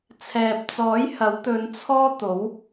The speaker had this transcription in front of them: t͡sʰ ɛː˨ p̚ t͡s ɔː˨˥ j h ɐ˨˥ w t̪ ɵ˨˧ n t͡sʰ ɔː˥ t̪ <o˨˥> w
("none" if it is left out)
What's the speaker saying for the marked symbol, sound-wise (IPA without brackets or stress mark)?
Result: o˨˥